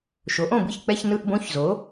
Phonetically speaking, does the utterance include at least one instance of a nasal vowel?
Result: yes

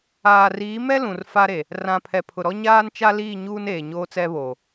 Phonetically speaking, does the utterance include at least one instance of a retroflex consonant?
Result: no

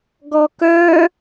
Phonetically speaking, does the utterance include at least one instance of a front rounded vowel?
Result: yes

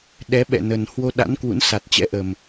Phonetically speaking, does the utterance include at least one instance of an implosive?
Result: yes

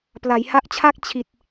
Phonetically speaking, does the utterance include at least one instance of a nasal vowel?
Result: no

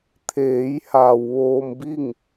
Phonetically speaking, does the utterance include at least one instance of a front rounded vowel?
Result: no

